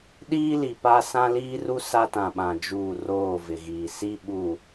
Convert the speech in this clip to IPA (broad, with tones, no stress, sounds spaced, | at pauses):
ɗ iː˦ l i˨ p a˦ s ã˦ l iː˦ r u˦ s a˦ t ã˨ ɓ ã˨ d͡ʒ uː˦˨ r oː˦˨ v ɪ˨ ɣ iː˨ s i˦ ɓ u˨